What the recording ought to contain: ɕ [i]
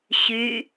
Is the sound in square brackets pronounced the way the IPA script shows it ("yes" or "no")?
no